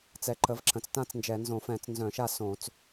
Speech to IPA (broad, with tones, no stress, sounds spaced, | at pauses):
t͡s ɛ˩˧ ǃ ə˩˧ v ǁ ə̃˩˧ t͡s t ã˥˨ t͡s n d͡ʒ ɛ˧˩˧ n z õ˧˩˧ f ɛ̃˧˩˧ t͡s n z œ̃˧˩˧ ʃ a˥˨ s õ˧˩˧ t͡s